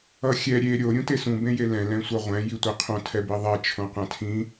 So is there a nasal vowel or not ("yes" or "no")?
yes